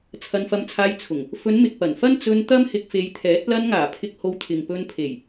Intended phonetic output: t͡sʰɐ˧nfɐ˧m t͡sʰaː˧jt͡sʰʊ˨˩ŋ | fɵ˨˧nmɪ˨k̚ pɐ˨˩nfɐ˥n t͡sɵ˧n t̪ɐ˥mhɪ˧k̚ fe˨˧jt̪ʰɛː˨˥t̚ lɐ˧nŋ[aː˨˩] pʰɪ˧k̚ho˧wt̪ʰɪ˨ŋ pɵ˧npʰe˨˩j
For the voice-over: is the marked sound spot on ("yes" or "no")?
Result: yes